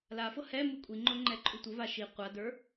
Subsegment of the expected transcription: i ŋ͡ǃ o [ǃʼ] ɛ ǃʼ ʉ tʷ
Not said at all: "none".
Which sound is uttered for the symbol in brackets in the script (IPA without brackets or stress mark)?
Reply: ŋ͡ǃ